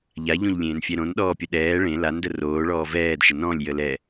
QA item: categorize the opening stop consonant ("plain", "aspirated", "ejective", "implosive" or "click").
implosive